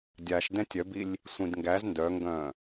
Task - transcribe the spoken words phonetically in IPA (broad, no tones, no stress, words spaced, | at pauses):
dʲaʃ dɛ̃tʲœbilʲ | sʷĩdŋɡæz ndœŋɡœ̃